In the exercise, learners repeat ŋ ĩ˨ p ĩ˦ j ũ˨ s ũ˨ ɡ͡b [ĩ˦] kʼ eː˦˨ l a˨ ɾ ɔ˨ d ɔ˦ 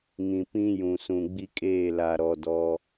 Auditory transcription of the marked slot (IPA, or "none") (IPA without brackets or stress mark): i˦